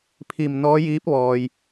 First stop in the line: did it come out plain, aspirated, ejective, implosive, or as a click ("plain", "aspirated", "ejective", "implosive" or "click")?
aspirated